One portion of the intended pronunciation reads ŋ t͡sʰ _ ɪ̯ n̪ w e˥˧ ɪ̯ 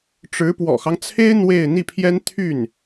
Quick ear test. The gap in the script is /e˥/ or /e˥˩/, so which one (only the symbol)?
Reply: e˥